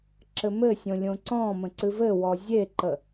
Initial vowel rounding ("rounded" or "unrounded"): unrounded